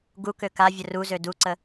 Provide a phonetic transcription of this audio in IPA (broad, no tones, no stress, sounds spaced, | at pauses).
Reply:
ɡ u k ø k a vʲ ə r u z ø d u ǀ ə